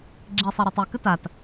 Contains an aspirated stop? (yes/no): no